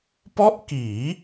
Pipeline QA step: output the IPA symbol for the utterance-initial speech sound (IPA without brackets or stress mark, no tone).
p